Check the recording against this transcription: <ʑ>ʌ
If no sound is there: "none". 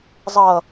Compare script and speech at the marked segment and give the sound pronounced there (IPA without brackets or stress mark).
zˤ